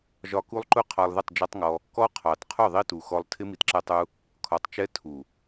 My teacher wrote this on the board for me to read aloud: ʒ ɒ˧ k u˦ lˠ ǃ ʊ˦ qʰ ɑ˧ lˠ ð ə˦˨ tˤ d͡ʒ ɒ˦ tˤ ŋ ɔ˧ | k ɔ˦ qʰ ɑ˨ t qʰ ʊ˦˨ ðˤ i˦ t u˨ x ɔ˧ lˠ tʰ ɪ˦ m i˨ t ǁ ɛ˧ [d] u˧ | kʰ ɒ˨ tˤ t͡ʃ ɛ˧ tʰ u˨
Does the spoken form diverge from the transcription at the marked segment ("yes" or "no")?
yes